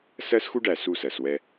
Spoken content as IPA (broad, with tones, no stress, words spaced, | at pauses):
sɜ˦sxu˦ɖæ˨ su˦˨sɜ˨swɛ˦